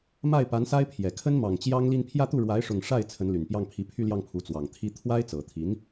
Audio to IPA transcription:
ma˥˩ɪ̯pa˧˥nsa˥ɪ̯pʰjɛ˨˩ kʰə˥nmɑ˨˩ŋt͡ɕjɑ˥ŋli˥˧n pʰjä˥˧t̪u˥˩ɻwa˧˥ɪ̯ ʂʊ˥˧ŋ ʂa˥˩ɪ̯ t͡sʰə˧˥nly˨˩n pjɑ˥˩ŋpʰi˧˥ pʰy˥˧ljɑ˥˩ŋpʰu˧˥ t͡swɑ˨˩ŋt̪ʰi˥ t̪ʰwa˥ɪ̯t͡sɤ˨˩t̪ʰi˧˥n

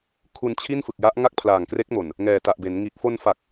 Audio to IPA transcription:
kʰu˧nt͡ɕʰi˥˩n fɯ˨˩k̚ja˦˥ʔ ŋa˥˩k̚pʰlaː˨˩ŋkre˦˥k̚mo˨˩n | ŋɛː˨˩ta˨˩ʔbe˩˦nŋiː˨˩k̚ fo˧nfa˨˩k̚

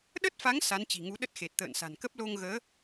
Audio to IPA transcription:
ɗə˦˥t̚fa˨˦ŋ sa˨˦nt͡ɕi̤˨˩ŋu˨˦ɗə˦˥t̚ xe˨˩t̚t̪ə̰ː˧˨nsa̤˨˩nkə˦˥p̚ lo˧ŋɣəː˨˦

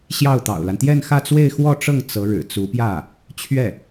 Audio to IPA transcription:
ɕjɑ˥˩ʊ̯t̪ɑ̰˨˩ʊ̯la˦n t̪jɛ˥˧nxä˥˧t͡swe˥˧ɪ̯ xwɔ˥˧ʈ͡ʂɤ˥˩ŋ t͡sɤ˧˥ ɻɻ̩˨˩t͡su˧˥pjä˥˩ | t͡ɕʰɥɛ˥˩

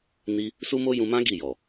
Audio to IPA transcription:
ni˧ | su˦mo˦ jũ˧mã˦ ɡi˦˨jɔ˨

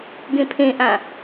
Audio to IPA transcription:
ɡẽpʰẽʔã

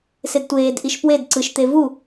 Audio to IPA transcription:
sedtʷeːdʔiʃ pwed ǀɯʃt̪e vu

